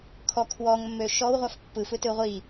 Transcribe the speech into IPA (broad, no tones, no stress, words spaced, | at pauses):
kʰɔ kʰwɔŋmːø ʃɔwʁʷaf pːɯfɯtɯ ʁʷi